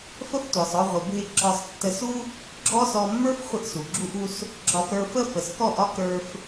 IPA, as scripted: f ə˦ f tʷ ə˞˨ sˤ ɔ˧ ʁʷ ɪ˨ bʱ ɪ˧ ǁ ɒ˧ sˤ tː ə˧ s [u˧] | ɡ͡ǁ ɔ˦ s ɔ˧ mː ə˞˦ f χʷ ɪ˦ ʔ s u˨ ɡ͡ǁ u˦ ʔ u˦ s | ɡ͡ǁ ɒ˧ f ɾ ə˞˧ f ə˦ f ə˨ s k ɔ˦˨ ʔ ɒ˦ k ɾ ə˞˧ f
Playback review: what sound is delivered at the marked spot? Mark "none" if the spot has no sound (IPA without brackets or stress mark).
u˦